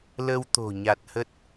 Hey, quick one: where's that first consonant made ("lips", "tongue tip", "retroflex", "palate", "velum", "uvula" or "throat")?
tongue tip